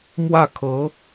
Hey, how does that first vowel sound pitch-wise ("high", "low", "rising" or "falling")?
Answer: falling